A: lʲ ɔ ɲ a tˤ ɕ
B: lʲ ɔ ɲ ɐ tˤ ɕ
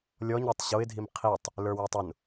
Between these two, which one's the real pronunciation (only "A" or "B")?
B